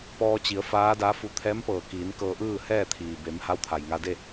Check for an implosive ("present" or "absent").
absent